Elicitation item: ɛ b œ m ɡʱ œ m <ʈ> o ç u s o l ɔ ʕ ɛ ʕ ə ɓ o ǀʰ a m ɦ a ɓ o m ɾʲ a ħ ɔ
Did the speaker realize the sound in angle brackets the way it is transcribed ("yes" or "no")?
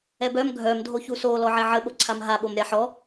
no